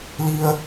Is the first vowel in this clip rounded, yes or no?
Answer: no